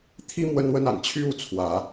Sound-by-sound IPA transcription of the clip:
t̪ʰ i˦ m w ə˦ n w ə˦ n a̰˨˩ n t͡ɕʰ y˦ u˥˨ t͡sʰ w ä˨˦

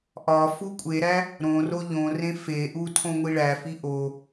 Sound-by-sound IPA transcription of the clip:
ʔ ɒ f u kʷʼ e ɾ æ | ɾ õ r o ʎ õ r ẽ f e ʔ u tʰ õ ŋʷ i ɭ æ f i ʔ o

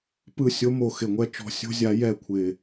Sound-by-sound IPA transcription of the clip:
p ɯ˦˨ sʲ o˧˥ m o˨˩ x ɪ˨˩ ŋʷ ɛ˦˨ t͡ʃ ɔ̤˦˨ sʲ o̤˥ zʲ a˧˥ j ɛ˦˨ kʷʰ ɪ˨˩

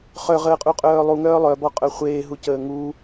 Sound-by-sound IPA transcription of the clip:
χ œ ʁ əː qʼ u qʼ œː lˠ u ŋ œː lˠ œ b ɔ qʼ œ χʷ eː ɦ u c əː ŋ u

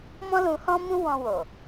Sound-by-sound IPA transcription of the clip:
m ɔ̃˦ l ũ˧ h ɔ̃˦ m ũ˦ w ɔ̃˧ w o˨

